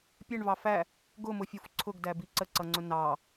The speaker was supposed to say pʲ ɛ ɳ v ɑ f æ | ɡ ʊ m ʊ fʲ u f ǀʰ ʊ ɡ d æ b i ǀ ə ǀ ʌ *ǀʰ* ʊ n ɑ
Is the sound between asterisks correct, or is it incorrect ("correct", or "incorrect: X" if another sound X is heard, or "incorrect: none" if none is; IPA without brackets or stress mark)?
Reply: incorrect: ŋ͡ǀ